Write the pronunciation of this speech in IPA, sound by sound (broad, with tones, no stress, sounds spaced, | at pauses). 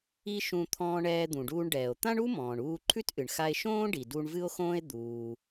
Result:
i˥ ʃ ũ˧ t̪ʰ ɔ̃ː˧ ɳ ɛː˧ d̪ ũ˩ ɖ uː˧ ɳ ɖ ɛː˩ o̯ t̪ ã˥ ɳ u˥ m ɔ̃ː˩ ɳ uː˧ ǃʰ ʉ˥ t ʔ ɨ˩ ɳ x a˧ e̯ ʃ õː˥ ɖ i˩ d u˧ ɳ v ɨ˥ o̯ x õː˥ e̯ d̪ uː˩